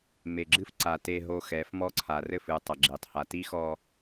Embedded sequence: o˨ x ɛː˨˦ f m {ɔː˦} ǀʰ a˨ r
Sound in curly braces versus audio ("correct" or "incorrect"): incorrect